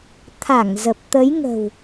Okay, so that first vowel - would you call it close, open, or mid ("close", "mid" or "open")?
open